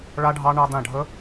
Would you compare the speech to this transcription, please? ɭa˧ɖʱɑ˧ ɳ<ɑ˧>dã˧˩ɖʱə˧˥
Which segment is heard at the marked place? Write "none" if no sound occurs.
ɑ˧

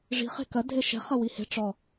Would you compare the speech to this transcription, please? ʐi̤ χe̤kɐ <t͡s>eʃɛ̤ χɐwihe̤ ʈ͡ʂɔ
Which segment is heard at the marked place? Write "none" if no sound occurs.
dʱ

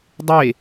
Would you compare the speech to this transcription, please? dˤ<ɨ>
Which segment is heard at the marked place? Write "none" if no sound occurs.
e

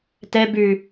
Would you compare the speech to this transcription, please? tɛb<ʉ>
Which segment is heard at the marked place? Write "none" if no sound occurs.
ʉ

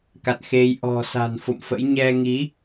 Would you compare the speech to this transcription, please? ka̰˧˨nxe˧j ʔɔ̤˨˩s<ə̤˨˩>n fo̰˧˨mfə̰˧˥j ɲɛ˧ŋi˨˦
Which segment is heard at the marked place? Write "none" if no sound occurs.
a̤˨˩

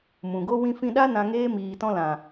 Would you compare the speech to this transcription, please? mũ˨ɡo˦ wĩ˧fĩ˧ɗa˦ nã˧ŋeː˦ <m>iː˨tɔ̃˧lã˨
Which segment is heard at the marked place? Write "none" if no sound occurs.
m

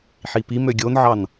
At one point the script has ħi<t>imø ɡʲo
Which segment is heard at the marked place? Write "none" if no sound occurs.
p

